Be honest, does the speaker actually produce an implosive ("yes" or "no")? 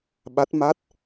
yes